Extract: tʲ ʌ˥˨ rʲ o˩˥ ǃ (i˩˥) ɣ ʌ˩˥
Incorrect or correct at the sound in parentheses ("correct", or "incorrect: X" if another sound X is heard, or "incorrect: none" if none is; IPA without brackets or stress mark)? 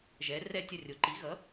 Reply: correct